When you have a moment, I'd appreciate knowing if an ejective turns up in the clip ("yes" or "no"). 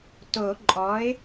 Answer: yes